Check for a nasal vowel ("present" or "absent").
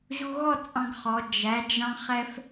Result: present